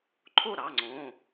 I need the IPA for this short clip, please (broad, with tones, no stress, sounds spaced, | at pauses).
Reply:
ǃʰ o˥˩ ɾ ɑ˩˧˩ ŋ͡ǀ õ˩˧˩